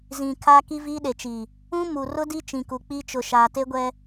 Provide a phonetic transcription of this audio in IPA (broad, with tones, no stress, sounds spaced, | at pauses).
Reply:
z ĩ˨ kʰ aː˦ k i˦ v iː˦ ɗ e˨ t͡ʃ i˨ | ũ˦ m u˨ r ʊ˦ d i˦ t͡ʃ ĩ˨ k u˨ k͡p i˦ t͡ʃ ʊ˨ ʃ aː˨ t e˦ ɡʷ ɛ˦